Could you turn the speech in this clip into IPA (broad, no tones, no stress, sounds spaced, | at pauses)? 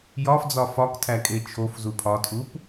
j ɒ f d͡z ɒ f ɒ k tʰ æ kʼ e t͡ʃʰ o f z u pʰ ɒ tʰ u p